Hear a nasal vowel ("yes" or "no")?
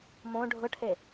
yes